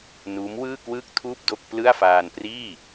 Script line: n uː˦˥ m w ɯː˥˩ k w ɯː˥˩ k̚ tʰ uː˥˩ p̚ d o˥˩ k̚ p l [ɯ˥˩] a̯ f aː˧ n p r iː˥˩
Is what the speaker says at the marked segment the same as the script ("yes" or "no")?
yes